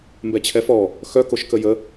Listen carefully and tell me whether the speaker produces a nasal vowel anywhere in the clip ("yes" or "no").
no